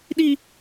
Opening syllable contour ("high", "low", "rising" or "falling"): low